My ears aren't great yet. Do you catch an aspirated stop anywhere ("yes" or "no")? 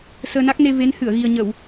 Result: no